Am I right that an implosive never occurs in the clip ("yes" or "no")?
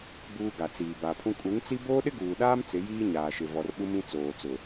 no